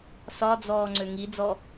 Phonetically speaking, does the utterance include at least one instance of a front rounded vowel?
yes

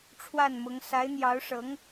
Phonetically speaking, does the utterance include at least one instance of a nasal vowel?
no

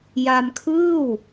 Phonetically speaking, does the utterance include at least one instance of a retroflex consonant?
no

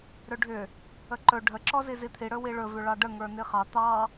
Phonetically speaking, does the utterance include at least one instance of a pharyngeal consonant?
no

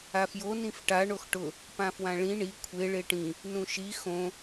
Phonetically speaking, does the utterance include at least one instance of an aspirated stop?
yes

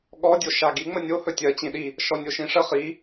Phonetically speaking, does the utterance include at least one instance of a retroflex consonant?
yes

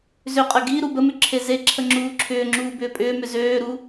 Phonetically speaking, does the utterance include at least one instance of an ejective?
yes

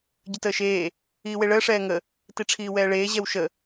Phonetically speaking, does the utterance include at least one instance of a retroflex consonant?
yes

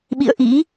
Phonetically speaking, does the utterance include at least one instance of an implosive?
yes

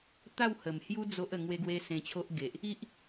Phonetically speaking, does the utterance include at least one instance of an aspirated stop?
yes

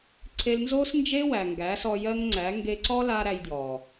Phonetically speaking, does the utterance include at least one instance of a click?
yes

